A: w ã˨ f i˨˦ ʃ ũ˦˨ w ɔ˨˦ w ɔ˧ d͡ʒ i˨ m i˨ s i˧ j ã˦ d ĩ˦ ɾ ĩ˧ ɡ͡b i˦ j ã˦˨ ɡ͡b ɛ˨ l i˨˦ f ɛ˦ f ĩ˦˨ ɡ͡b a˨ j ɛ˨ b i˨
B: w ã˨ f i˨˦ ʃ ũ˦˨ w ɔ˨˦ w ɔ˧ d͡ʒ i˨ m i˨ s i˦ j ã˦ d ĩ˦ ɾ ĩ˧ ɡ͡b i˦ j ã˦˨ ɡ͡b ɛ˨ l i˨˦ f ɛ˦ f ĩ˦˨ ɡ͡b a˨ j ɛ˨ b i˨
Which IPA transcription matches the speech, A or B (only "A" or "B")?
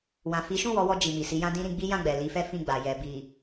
A